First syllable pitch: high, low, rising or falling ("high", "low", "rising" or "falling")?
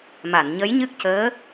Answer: low